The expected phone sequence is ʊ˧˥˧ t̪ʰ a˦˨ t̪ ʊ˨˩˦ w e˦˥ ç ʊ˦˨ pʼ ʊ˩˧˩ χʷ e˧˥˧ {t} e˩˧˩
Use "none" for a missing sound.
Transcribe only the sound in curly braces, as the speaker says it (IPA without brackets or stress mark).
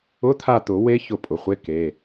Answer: k